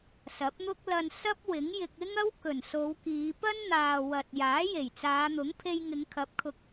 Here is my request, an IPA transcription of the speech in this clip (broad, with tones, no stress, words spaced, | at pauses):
sɐ˨˥p̚n̪ʊ˥k̚ lɐ˧n sɐ˥p̚wɪ˨˥ŋjɪ˧k̚ ɪ˥ŋɐ˥w kɵ˨˩nso˨˧wkiː˨˧ pɐ˥nn̪aː˨ wɐ˨t̚jaː˨˥ je˨˩jt͡saː˨˧n̪ʊ˨˥ŋ pʰe˧jŋɪ˨˧ŋkʰɐ˨˥p̚kʰʊ˨k̚